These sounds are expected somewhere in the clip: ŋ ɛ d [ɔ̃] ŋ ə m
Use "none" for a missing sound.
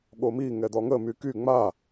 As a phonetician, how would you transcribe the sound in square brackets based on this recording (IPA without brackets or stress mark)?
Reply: ɔ